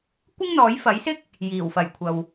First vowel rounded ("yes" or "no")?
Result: no